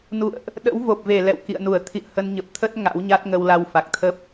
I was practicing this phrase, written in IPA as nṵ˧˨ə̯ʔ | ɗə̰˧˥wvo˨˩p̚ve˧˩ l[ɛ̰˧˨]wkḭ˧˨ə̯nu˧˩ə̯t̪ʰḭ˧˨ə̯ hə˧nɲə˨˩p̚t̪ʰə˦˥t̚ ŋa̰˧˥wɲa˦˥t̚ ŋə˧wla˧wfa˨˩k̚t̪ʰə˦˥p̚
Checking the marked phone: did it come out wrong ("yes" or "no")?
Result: no